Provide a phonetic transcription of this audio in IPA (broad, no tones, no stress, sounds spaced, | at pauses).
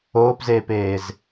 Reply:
oː p z eː p eː z